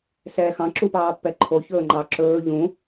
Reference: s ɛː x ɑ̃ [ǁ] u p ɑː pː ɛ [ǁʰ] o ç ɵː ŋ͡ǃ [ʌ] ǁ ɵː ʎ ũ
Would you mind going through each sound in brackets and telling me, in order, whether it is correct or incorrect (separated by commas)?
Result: correct, incorrect, incorrect